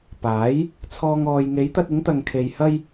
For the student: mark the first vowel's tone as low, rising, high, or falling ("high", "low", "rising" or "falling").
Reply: rising